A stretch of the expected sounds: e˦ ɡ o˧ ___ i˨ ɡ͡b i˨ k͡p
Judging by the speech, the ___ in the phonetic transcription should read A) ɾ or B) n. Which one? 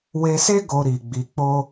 A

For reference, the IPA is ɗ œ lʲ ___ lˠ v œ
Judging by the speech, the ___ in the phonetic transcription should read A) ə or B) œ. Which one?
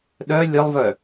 A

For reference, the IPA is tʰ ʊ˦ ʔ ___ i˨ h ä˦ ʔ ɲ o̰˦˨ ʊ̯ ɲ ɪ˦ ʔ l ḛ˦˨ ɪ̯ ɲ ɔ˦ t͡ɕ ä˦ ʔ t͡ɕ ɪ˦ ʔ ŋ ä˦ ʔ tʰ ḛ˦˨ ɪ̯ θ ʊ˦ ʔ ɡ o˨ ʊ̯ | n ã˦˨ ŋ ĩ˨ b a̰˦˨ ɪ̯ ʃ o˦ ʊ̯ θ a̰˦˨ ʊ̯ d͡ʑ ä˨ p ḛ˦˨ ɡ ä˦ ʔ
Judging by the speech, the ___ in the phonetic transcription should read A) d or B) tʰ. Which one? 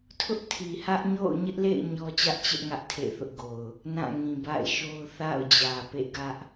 B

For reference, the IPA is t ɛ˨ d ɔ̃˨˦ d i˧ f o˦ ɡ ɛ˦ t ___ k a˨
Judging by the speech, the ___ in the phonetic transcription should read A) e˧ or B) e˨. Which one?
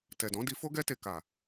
A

